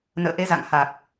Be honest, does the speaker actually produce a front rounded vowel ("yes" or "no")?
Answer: no